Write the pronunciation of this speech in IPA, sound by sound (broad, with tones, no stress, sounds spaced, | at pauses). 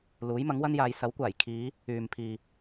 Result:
l uː˨˥ j m ɐ˨˥ ŋ w ɐ˥ n j aː˨˧ j s ɐ˨˥ w kʷ aː˨˩ j kʰ iː˨˧ | yː˨ m pʰ iː˨